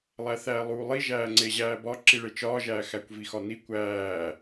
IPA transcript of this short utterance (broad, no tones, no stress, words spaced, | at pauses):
lˠæθæːlˠuːlˠi ʒæːŋ͡ǀeʑæːbɒ ǁiɭet͡ʃɒːʒæː xækʷvixɒni kʷæː